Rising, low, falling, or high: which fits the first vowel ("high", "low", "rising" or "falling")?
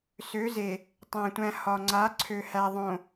rising